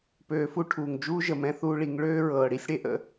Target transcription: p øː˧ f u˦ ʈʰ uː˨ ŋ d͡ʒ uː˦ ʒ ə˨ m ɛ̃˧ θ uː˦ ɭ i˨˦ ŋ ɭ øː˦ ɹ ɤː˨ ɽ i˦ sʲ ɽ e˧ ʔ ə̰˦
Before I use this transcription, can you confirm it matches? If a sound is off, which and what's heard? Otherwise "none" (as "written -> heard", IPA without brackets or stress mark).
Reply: none